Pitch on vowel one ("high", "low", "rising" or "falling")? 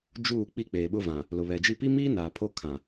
falling